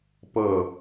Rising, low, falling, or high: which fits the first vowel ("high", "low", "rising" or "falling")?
falling